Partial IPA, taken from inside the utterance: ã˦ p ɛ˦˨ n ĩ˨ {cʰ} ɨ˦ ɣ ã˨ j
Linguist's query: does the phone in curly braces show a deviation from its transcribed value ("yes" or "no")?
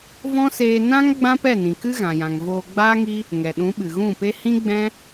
yes